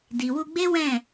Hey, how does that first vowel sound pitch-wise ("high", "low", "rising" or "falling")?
low